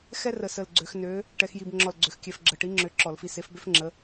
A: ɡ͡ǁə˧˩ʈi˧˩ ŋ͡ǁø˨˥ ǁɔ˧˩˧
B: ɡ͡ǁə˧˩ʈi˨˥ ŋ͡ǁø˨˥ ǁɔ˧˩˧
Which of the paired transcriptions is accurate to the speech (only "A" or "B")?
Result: B